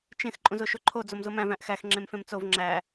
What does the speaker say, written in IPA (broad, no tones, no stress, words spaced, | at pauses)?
t͡ʃẽx ǃʼũzoʃoǃʰo d͡zomzomæ̃v æ̃ʔxæx ŋ͡ǁẽmfẽmt͡sov ŋ͡ǁæ